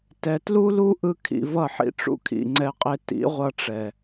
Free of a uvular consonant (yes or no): no